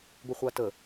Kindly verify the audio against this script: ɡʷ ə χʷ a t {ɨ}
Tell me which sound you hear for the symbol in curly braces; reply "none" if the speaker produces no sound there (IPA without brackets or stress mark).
ə